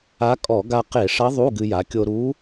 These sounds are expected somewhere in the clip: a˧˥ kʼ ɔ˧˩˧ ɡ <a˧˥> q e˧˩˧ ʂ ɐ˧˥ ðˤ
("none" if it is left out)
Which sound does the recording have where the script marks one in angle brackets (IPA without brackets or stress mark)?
a˧